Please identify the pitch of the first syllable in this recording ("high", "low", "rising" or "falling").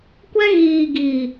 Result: high